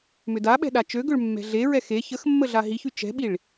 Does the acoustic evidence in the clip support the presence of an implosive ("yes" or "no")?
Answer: yes